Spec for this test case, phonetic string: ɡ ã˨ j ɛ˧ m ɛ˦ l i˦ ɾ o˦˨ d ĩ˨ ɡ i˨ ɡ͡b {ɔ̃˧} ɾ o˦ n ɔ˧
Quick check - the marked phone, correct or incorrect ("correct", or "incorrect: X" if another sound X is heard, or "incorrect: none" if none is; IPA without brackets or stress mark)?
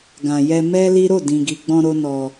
correct